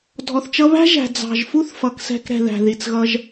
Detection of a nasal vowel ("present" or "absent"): absent